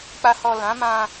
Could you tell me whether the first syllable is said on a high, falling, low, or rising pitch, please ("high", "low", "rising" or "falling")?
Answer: low